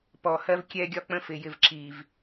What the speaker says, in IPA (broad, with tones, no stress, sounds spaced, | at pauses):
p ɔ˨ h ɜ˦ v kʲ ɛ˦ ɡʲ ɒ˦ k͡p ə̃˦ f ɪ˨ j ɪ˨ v ǁ i˨ v